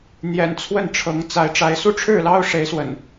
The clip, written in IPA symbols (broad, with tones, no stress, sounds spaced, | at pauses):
n̪ j ɛ̰˨˩ n t͡sʰ w ə˥˨ n ʈ͡ʂʰ ɤ˨˦ ŋ t͡s a˨˦ ɪ̯ ʈ͡ʂ a˨˦ ɪ̯ s u˥˨ ʈ͡ʂʰ ɻ̩˥˨ l ɑ˦ ʊ̯ ʂ e˨˦ ɪ̯ s w ə̰˨˩ n